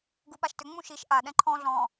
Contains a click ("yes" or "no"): yes